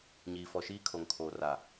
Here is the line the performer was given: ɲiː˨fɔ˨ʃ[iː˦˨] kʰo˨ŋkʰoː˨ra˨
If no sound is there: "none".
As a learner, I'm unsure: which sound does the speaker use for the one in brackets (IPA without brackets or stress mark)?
iː˦